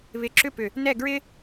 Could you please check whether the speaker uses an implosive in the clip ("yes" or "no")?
no